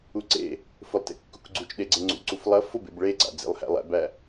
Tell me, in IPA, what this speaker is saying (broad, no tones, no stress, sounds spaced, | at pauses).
u ǀ ḛ | f ʊ lˠ t ḛ kː u k ɡ͡ǀ u t͡ʃ ɗ e ɡ͡ǀ e ŋ͡ǀ ṵ ǀ u f lˠ ɐ f ʊ b ḛ b ɭ e ɡ͡ǀ a̰ d͡z ḛ lˠ h æ̰ lˠ æ̰ b æ